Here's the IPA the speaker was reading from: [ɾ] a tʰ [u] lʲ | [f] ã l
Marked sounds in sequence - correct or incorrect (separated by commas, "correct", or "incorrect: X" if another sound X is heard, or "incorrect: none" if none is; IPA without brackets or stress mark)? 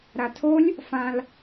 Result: correct, incorrect: o, correct